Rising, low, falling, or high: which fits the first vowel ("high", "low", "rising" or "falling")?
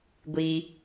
high